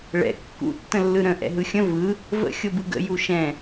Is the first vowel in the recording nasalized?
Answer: no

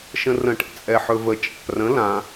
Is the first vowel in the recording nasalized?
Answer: yes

